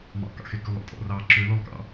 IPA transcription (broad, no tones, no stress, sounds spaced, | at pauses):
m ɑ̰ k ɑ̰ x e k ʉ lˠ ḛ tʼ ɔ̰ r ɑ ǁ ø l ɔ lˠ k ɑ̰